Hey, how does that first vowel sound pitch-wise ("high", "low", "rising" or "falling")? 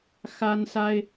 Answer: high